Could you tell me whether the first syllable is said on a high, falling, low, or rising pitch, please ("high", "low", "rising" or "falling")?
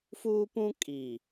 high